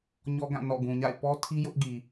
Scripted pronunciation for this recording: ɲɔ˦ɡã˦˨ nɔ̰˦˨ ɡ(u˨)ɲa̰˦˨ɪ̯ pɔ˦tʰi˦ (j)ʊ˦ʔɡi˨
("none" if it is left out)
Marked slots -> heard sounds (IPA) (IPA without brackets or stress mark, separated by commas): ũ˨, j